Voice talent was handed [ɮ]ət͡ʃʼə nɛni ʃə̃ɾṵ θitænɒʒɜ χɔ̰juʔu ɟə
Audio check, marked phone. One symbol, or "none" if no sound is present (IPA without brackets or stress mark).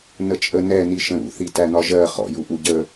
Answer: n